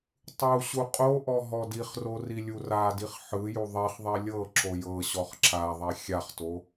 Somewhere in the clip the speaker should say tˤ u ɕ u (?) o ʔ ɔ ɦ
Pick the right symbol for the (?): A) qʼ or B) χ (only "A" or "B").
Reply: A